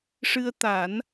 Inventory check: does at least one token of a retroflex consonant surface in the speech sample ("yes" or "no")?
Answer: yes